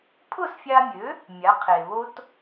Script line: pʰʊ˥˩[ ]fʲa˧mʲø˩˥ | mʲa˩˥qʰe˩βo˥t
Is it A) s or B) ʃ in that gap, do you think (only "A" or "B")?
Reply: A